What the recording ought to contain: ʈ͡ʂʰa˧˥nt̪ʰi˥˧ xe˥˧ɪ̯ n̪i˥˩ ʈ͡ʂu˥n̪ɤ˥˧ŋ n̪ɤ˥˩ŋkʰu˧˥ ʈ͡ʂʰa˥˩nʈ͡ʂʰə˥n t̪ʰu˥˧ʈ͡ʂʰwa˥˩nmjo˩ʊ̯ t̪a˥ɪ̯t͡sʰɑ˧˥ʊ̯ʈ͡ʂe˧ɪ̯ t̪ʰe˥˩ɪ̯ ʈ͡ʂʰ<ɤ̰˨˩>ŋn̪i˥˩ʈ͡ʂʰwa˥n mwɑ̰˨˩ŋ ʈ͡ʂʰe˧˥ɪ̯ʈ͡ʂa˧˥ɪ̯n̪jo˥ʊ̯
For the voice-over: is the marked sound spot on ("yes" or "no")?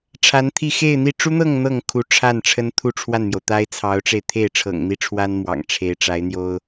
yes